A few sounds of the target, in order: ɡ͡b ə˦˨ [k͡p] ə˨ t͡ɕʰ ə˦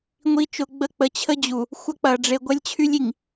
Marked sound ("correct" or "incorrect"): correct